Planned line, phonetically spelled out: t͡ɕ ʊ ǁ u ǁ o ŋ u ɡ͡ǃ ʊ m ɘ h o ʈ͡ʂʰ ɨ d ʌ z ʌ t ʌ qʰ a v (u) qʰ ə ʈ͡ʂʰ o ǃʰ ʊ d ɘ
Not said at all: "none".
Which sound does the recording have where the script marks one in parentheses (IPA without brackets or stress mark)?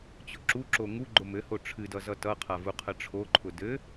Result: u